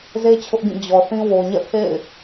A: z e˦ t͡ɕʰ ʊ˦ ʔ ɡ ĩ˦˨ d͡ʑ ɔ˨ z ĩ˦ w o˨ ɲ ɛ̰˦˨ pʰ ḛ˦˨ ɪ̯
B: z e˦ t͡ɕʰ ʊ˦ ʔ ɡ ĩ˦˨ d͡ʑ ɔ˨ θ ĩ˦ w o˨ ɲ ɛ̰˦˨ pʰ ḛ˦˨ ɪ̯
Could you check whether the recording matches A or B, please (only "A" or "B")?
B